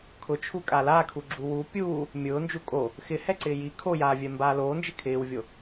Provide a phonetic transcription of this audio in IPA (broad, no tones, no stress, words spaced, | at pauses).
kʰʊt͡ʃʰu kʼalakʰuɡ͡ǁu wu pʲuː | mʲʊː nd͡ʒukʼo | xɪhɛǀɪː ji kʰojaːvʲɛ mbaːloːnd͡ʒɪ kʰɪːwvʲo